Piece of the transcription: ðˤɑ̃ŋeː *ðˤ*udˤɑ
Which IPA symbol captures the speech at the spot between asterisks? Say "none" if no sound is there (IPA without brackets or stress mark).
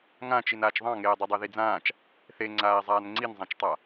dˤ